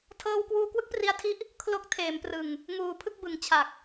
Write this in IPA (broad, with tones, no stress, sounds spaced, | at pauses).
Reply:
tʰ ɤː˧ w k w uː˧ k w ɯ˦˥ k̚ p r i˧ a̯ tʰ i˦˥ ʔ | kʰ l o˦˥ k̚ tʰ eː˩˦ m p r ɯ˨˩ ŋ | ŋ uː˨˩ pʰ ɯ˥˩ k̚ b ɯ˨˩ ŋ t͡ɕʰ a˨˩ k̚